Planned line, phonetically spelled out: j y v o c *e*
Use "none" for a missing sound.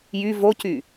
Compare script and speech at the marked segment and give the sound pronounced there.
y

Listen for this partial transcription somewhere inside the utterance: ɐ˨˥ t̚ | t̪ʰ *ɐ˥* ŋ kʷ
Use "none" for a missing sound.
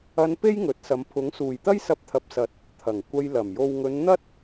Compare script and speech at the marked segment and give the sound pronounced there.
ɐ˨˩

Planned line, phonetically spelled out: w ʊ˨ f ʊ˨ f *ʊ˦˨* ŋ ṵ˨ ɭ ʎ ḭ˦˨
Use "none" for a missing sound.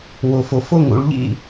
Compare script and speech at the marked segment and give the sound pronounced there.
ʊ˦˨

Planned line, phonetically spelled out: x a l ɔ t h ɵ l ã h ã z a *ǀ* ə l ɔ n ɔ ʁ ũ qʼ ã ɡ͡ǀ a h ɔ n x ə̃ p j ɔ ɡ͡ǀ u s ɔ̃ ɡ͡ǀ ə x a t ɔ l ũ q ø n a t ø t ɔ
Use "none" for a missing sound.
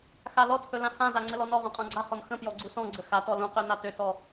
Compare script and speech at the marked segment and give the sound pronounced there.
ŋ͡ǀ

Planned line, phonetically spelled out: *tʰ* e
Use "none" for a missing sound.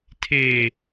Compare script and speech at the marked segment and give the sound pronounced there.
tʰ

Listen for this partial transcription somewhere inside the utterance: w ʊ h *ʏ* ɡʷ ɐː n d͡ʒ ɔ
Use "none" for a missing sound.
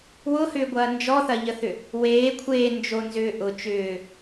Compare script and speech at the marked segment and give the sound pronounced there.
ʏː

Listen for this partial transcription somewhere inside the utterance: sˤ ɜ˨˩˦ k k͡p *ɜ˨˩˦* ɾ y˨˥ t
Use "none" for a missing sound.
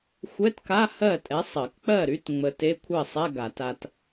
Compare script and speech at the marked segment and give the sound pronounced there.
ɜ˥˩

